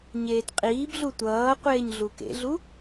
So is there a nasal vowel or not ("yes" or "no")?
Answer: no